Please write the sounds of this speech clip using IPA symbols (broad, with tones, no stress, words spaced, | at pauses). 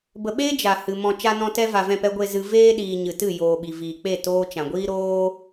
bə˨ɓeː˦ d͡ʒa˨ hɨ˨mɔ̃˧ t͡ʃa˧nɔ̃˧ tɛ˦va˨vɛ̃˦˨pɛ˦ ɡʷe˧ zɨ˧ veː˦ɗiː˨ ɲɨ˨tɨ˦˨ joː˨ɓi˨viː˨k͡pe˦˨ toː˦ t͡ʃã˨ɡʷiː˦ɾoː˦